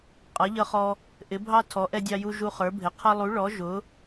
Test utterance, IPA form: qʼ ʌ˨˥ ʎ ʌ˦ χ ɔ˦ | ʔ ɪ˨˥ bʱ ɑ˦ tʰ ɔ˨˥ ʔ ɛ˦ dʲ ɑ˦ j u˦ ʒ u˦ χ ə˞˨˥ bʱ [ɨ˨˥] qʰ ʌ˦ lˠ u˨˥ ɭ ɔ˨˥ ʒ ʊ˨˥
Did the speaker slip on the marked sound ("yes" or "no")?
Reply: yes